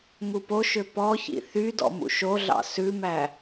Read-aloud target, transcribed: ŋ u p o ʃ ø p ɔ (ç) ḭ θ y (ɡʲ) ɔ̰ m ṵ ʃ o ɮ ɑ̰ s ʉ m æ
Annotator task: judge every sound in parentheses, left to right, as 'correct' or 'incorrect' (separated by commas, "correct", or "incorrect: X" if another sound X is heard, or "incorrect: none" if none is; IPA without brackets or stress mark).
correct, incorrect: d